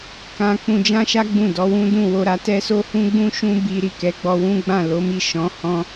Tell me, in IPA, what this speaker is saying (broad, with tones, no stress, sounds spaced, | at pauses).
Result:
k ã˧ k͡p ũ˧ d͡ʒ ã˦ ʃ a˦ ɡ͡b ũ˦˨ d ɔ˨˦ w ũ˦ d ũ˦˨ w o˧ ɾ a˧ t ɛ˦ s o˦ h ũ˦ ɡ͡b ũ˦ ʃ ũ˦ b i˧ ɾ i˨ k ɛ˨˦ ɡ͡b ɔ˧ w ũ˦ ɡ͡b ã˦˨ l o˨˦ m i˦˨ ʃ ɔ̃˨˦ h ɔ̃˦